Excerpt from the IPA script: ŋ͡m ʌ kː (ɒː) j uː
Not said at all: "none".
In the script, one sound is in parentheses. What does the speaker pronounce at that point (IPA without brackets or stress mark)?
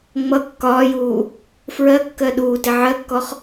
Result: ɒː